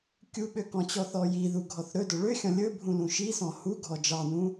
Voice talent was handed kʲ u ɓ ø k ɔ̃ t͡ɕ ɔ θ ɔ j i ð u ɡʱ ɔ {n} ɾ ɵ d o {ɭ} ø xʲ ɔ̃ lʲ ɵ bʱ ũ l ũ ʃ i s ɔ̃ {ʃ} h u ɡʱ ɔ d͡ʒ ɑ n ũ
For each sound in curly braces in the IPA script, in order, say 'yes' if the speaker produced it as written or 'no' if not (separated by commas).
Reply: no, yes, no